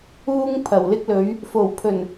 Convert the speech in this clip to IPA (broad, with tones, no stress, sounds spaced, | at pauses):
uː˥ ŋ pʰ ɐ˨˩ w l ɪ˥ k̚ l ɵ˨˥ ɥ | f o˨˩ w pʰ ɵ˨˩ n